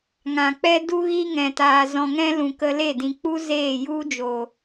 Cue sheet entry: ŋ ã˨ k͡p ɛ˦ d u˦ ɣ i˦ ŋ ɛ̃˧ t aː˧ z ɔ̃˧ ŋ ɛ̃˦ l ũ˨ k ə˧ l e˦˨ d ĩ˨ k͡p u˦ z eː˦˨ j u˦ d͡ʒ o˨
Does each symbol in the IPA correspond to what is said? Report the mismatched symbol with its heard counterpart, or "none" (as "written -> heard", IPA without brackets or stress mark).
none